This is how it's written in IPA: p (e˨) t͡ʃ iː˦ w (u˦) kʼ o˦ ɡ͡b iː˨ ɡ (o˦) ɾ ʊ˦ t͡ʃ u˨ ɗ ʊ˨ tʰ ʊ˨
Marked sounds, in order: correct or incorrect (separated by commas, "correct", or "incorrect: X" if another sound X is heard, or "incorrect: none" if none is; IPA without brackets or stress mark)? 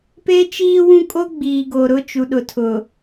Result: incorrect: e˦, incorrect: ũ˦, incorrect: o˨